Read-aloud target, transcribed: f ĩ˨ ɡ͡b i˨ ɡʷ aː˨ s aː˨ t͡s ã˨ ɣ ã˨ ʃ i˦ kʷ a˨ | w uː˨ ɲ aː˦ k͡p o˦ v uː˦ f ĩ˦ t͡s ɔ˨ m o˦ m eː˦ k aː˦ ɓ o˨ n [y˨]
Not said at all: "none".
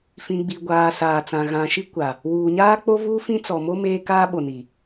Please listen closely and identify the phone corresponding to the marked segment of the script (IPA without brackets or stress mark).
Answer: i˨